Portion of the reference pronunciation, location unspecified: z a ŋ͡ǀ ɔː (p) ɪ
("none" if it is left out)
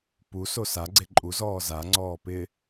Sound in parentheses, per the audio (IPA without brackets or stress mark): p